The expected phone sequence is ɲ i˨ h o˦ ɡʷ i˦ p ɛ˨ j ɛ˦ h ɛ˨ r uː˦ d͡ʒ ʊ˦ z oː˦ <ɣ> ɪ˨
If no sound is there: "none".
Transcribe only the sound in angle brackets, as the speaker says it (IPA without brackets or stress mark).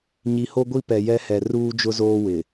w